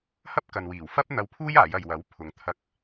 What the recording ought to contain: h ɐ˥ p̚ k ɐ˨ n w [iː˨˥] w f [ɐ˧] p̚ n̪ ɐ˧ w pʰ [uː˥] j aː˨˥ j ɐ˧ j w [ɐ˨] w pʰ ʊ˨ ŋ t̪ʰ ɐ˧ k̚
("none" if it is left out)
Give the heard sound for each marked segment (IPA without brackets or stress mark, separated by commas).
iː˨˩, ɐ˥, uː˥, ɐ˨˥